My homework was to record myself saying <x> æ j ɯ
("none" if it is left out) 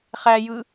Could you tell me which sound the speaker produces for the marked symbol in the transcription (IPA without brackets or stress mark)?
χ